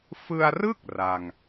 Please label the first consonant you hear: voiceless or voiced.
voiceless